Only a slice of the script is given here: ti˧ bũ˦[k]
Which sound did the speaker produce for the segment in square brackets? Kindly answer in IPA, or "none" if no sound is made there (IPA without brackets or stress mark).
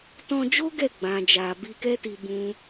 none